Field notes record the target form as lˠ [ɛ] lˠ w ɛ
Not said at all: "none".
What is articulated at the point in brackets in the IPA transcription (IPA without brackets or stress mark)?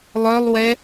œ